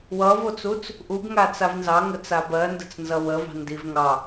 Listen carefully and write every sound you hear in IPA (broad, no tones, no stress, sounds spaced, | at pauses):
w ʌ v o t͡s u t͡s | ʔ u ɡ ŋ a t͡s a v n z ɑ ŋ ə t͡s a b ɜ n d ə̤ t͡s n z ʌ w ə v ɑ̤ n d i v ŋ ɑ